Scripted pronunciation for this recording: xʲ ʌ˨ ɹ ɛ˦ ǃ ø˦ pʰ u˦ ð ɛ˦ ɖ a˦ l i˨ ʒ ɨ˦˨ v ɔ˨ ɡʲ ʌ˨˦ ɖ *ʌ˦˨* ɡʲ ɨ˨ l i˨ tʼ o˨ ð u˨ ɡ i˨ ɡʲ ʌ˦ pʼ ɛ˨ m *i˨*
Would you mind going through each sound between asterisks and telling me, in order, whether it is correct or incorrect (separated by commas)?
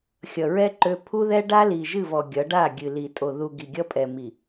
incorrect, correct